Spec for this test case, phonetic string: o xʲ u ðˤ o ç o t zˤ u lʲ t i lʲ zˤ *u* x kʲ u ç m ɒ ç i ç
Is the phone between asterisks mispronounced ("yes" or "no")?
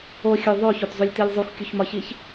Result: no